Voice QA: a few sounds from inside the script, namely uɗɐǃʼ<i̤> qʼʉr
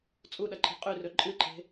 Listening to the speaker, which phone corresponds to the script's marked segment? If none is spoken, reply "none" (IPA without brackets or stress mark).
i̤